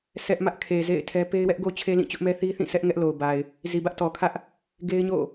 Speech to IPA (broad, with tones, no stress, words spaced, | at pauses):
sɛ˦ʔ mä˦ʔkʰe˨ zḛ˦˨ɪ̯tʰɛ˦ pe˦ɪ̯wɛ˦ʔɡo˦ t͡ɕʰe˦lĩ˦˨t͡ɕʊ˦ʔ mɛ˦θi˦θĩ˦˨sʰɛ˦ʔ ŋɛ˦ʔ lo˨ʊ̯ba˨ɪ̯ | zi˨bä˦ʔtɔ˨kʰä˦ʔ | ɡe˦ɪ̯ɲo̰˦˨